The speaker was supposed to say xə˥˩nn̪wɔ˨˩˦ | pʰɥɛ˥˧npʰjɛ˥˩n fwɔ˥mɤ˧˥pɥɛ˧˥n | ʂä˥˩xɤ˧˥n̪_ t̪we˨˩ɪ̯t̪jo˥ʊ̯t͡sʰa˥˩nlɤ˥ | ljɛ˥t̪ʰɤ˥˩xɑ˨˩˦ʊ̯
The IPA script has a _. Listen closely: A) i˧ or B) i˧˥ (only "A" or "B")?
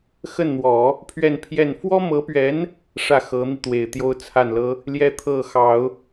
A